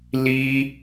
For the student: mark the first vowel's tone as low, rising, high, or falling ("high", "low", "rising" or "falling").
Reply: high